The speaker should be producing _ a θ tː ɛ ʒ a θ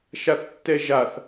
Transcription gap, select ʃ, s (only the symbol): ʃ